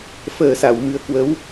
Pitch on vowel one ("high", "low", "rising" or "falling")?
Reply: low